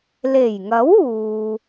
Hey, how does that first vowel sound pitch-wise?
low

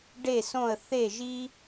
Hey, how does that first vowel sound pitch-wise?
falling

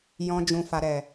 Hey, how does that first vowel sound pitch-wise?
low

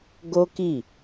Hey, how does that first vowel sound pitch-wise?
high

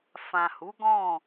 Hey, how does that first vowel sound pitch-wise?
low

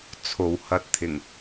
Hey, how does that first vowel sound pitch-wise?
low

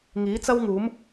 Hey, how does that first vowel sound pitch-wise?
rising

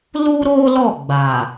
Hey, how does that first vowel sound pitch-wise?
high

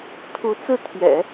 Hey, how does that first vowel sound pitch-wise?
rising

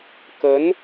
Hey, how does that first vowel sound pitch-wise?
rising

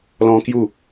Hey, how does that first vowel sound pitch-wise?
high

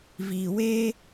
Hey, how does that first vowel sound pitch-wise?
low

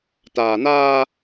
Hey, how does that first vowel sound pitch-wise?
low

